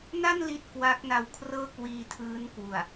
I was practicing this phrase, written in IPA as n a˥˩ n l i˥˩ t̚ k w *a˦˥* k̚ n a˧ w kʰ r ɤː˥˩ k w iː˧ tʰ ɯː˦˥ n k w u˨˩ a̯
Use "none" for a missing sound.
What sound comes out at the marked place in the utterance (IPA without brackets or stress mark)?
a˦˥